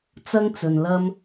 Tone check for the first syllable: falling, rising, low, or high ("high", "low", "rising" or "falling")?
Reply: high